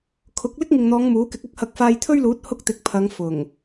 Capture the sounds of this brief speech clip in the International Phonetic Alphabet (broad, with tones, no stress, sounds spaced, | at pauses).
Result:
kʰ ʊ˨˥ k̚ l ɪ˥ k̚ ŋ ɪ˨ ŋ n̪ ɔː˨˧ ŋ m uː˨˥ k ɪ˨˥ k̚ ɐ˥ k̚ h ɐ˨˥ k̚ f aː˧ j t̪ʰ ɵ˥ ɥ l uː˨˥ t̚ h ʊ˥ k̚ t̪ ɪ˨˥ k̚ pʰ ɐ˨˧ ŋ f ʊ˨˩ ŋ